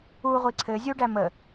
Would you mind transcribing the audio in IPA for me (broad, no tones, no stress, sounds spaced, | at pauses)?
u ʁʷ i ǀʰ ɘ zʲ u ɖ æ m ə